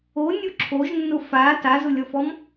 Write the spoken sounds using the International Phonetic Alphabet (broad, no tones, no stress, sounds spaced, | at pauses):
o nʲ o ǁʰ o ʒ nː ʊ f a t a z ʊ lʲ ɔ f ɔ m